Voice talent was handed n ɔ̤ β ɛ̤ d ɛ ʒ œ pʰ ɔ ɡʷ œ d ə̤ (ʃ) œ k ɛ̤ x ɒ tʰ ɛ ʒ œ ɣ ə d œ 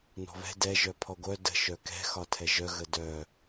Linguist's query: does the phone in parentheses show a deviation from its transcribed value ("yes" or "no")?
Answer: no